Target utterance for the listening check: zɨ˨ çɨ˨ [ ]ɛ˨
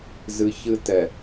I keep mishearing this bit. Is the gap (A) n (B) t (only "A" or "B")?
B